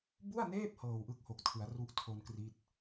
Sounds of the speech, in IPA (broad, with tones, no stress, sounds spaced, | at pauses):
b u˥˩ a̯ n eː˥˩ p̚ h ɤː˨˩ w ʔ ɯ˥˩ k̚ h o˨˩ k̚ tʰ ɯ˩˦ a̯ r u˦˥ ʔ tʰ o˧ n k r i˦˥ t̚